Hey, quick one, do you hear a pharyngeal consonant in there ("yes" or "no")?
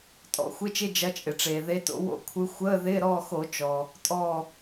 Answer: no